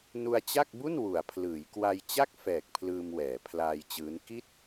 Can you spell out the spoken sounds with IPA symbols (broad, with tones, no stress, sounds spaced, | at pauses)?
n u˧ a̯ t͡ɕ a˥˩ k̚ b u˥˩ n w u˩˦ a̯ pʰ l ɯː˩˦ j k w a˧ j t͡ɕ a˥˩ k̚ f ɛː˨˩ k̚ pʰ l ɯː˧ m w ɛː˩˦ pʰ l aː˧ j t͡ɕ ɯː˦˥ n k i˥˩ t̚